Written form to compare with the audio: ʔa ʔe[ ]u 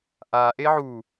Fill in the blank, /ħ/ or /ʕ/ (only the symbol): ʕ